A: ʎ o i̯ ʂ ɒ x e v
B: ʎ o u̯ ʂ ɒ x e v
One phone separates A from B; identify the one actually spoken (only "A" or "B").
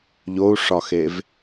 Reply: B